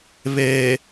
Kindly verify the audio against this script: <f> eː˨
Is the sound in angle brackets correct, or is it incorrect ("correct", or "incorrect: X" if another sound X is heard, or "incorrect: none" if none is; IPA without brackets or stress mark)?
incorrect: β